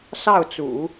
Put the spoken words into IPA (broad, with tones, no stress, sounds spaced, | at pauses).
s ɑ˥˩ ʊ̯ t͡s ṵ˨˩˦